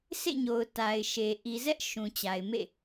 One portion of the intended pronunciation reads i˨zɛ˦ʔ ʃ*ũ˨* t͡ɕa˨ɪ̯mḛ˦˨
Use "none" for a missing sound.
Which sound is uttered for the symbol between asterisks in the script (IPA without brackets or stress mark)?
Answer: ũ˨